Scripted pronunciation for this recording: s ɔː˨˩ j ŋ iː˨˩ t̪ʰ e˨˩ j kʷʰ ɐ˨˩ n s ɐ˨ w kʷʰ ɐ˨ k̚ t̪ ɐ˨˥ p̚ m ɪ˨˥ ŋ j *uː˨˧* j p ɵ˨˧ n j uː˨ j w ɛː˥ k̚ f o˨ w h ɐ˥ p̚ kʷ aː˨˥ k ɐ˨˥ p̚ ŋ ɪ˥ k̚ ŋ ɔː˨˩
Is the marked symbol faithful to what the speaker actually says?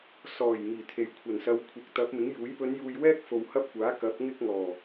no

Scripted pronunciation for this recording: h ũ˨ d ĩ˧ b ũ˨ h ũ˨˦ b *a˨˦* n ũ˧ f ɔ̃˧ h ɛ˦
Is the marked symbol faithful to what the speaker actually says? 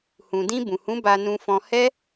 no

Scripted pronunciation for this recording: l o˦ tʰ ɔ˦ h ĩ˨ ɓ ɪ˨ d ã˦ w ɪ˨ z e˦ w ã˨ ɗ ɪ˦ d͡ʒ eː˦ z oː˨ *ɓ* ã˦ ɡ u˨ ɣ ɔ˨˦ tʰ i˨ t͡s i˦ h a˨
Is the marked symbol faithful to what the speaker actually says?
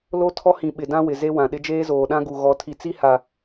no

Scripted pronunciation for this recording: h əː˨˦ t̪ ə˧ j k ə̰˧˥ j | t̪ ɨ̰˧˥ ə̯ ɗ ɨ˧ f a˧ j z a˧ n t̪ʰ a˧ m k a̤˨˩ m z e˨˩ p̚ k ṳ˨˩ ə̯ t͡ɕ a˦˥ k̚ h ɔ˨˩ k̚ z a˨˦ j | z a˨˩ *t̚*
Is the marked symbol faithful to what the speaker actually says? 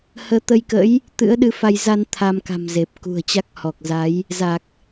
no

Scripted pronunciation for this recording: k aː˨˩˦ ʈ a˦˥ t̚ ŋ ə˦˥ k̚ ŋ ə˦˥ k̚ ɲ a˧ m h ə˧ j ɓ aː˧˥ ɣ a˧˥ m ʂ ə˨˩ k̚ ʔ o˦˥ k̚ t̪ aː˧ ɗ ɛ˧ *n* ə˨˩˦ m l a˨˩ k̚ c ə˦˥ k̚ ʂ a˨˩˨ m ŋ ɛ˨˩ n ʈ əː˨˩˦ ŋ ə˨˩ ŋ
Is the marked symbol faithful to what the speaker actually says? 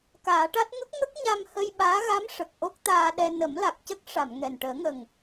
yes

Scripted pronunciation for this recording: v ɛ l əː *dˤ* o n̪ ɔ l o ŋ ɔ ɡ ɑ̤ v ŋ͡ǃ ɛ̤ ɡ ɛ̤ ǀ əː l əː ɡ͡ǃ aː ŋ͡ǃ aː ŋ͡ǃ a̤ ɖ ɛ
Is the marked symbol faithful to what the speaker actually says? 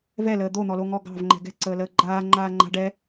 no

